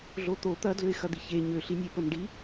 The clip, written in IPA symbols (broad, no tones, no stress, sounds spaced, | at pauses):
ɮ o t̪ o t̪ ɐ d l ø ɪ̯ x ɐ d̪ i ç e ɲ ø ɬ i nʲ e p ə m ɖ i